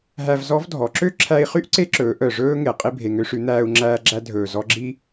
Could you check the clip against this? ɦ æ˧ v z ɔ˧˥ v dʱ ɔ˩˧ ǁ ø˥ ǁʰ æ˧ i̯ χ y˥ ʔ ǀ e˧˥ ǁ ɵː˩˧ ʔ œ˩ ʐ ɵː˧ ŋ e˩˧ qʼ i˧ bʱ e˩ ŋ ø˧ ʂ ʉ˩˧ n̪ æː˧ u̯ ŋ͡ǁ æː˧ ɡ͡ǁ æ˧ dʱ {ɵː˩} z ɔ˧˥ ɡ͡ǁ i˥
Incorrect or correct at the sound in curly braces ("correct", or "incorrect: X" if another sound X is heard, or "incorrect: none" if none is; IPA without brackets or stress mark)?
correct